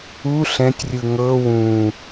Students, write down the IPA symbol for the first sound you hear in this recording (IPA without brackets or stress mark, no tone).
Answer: u